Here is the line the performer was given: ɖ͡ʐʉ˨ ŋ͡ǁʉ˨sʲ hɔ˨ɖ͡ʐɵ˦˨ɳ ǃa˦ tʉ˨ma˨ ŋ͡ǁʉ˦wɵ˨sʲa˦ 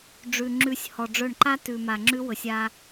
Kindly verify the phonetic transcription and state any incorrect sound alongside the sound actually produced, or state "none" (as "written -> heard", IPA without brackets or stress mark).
none